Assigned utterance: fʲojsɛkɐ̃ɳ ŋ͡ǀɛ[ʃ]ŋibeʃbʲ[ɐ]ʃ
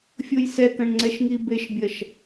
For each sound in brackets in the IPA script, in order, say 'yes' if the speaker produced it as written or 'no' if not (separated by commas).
yes, yes